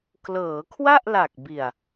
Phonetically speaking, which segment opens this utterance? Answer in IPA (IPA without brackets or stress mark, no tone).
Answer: k